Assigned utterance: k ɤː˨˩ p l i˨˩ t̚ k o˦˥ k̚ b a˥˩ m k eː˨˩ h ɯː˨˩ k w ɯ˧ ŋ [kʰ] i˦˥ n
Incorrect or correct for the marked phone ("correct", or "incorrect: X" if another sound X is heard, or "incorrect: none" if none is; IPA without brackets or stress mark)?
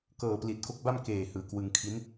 correct